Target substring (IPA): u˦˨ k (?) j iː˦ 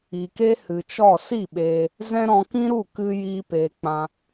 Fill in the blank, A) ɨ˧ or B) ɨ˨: A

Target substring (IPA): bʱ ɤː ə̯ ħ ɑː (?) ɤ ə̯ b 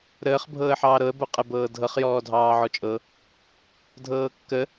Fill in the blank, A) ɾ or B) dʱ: A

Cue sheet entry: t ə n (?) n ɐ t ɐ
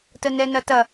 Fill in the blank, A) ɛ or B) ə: A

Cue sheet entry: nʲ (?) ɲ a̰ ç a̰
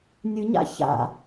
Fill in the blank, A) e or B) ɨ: B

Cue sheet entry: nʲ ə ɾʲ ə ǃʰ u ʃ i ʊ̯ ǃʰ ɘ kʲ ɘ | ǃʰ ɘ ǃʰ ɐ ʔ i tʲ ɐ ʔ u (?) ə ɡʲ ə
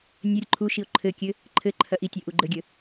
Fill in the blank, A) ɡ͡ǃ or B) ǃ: A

